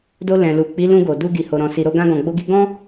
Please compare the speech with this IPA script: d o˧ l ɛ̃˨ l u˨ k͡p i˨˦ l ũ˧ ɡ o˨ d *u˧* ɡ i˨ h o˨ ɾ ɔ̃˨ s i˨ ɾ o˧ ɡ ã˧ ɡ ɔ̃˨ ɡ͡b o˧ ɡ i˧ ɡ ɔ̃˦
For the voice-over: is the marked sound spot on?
yes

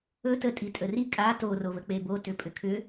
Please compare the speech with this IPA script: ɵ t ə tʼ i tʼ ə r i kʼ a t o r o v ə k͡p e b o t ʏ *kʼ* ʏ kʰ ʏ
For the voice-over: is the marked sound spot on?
no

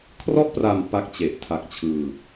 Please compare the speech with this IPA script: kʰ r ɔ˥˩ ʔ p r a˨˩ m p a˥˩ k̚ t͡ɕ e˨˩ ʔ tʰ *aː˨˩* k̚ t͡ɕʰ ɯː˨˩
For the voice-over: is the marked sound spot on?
no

